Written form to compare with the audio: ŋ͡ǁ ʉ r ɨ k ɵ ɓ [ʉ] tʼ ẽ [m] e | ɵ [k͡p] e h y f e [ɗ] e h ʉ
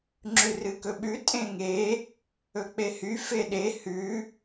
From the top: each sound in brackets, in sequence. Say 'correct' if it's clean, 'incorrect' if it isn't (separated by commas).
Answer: correct, incorrect, correct, correct